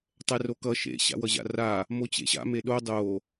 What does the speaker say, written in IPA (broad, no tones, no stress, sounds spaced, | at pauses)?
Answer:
tˤ ɛ r o k ʌ ʃ ḛ ɕ a̰ w ʌ ʑ a̰ r a | m o t͡ɕ ḛ ɕ a̰ m e ɗ o dˤ o